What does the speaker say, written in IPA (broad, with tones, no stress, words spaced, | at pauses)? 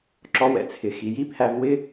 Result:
ǁɔ˧wɛ̰˧t͡sʰɪ˨ xi˨ji˦pʰæ˧v wɪ˦